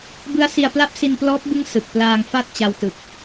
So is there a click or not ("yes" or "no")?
no